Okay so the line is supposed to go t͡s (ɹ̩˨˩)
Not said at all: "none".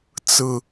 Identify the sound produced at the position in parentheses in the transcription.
ɹ̩˨˩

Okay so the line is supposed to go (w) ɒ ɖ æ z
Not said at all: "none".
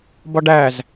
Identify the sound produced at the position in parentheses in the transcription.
b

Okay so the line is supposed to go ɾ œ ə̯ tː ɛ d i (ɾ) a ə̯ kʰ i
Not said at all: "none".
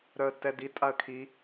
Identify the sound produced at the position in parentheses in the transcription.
tʼ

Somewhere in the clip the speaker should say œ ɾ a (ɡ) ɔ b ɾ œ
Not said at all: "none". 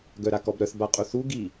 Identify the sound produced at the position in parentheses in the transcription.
k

